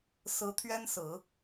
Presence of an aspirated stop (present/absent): present